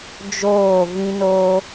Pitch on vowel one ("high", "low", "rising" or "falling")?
falling